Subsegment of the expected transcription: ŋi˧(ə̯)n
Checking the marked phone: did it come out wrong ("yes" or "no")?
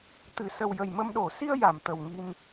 yes